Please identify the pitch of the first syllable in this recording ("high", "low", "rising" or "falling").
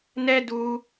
high